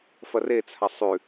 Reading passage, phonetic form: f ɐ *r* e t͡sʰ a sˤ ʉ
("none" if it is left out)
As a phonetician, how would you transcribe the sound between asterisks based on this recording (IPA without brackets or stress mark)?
r